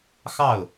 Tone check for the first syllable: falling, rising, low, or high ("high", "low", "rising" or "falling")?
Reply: falling